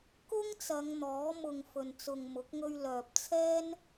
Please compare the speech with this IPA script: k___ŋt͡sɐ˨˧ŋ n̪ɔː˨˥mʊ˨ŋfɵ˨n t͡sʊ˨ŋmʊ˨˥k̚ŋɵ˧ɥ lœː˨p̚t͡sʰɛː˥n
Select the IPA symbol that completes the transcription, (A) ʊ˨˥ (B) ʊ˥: B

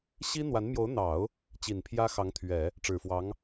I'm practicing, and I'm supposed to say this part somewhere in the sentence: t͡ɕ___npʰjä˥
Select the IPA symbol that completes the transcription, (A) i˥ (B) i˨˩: B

